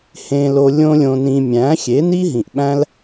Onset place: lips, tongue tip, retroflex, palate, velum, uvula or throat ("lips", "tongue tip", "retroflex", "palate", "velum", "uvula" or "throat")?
throat